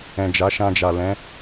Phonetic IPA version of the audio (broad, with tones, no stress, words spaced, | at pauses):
ɛ̃˨d͡ʒa˨˦ ʃã˧d͡ʒa˨ lɛ̃˨˦